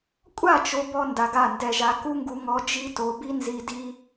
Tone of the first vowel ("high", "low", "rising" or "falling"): falling